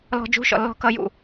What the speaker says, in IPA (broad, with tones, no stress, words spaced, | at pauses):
lɔ̤˧d͡ʒṳ˧˥˧ʃɔ̰˧˩ lːɔ̤˧kʌ˧jṵ˧˩